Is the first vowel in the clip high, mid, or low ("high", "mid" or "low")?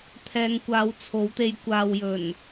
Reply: mid